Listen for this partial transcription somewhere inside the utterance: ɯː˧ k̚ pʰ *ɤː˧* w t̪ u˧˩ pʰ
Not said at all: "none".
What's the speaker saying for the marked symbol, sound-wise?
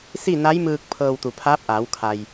ɤː˧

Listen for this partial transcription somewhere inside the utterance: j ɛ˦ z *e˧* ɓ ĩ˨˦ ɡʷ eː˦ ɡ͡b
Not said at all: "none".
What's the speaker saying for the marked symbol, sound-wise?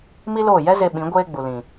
e˧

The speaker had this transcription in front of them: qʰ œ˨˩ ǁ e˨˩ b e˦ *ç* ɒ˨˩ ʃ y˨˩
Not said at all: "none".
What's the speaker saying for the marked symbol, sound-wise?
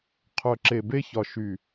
ç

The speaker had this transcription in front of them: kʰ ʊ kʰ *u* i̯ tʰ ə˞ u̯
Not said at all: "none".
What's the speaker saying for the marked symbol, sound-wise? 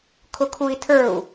u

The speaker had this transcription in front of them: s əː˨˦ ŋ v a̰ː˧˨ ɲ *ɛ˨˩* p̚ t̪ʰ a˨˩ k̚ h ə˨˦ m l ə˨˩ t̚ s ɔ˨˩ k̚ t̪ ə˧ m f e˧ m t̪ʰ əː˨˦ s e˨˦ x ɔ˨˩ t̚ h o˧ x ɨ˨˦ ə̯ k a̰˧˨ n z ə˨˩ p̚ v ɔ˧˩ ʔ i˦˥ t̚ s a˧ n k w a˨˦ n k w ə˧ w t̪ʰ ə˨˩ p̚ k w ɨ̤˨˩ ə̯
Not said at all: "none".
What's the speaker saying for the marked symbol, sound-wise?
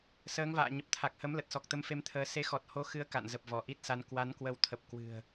ə˨˩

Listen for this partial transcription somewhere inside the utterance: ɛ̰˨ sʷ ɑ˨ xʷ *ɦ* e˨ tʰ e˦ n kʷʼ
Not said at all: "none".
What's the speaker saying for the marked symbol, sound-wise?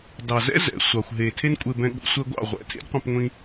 ɦ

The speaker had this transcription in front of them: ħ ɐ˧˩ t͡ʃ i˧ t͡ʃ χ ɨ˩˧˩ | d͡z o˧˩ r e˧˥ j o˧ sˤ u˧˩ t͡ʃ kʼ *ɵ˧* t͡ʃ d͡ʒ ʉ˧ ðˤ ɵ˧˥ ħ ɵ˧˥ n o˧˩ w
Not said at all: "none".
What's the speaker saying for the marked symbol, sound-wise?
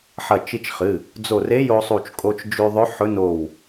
o˧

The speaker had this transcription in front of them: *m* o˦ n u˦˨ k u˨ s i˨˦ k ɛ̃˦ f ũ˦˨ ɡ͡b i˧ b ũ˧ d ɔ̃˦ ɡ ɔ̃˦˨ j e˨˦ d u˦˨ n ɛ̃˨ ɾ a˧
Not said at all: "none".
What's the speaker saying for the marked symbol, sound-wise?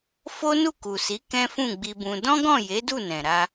f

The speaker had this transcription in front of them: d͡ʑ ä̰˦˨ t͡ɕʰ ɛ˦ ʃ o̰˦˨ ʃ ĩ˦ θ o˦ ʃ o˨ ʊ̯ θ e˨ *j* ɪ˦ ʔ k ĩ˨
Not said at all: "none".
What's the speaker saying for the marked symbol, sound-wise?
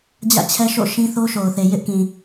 j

